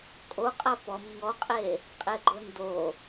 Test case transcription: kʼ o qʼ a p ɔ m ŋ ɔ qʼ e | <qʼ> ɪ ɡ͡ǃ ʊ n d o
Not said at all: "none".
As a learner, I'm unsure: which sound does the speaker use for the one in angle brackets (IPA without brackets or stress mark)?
qʼ